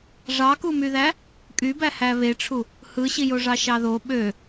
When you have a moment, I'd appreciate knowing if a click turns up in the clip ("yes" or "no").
no